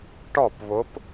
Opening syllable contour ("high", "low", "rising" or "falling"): falling